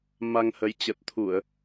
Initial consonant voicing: voiced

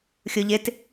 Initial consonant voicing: voiceless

